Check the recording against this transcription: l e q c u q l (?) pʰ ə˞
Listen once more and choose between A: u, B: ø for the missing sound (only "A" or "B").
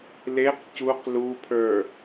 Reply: A